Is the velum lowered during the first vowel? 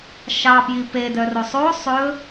no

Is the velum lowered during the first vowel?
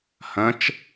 yes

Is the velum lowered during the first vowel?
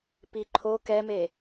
no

